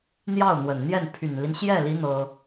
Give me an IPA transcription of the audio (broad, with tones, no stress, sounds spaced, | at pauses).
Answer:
n̪ j ɑ˥˩ ʊ̯ n̪ w ə˨˩ n n̪ j ɛ˥˩ n pʰ y˨˩ n l i˦ n ɕ j ɛ˥˩ l i˧˥ n̪ ɤ˥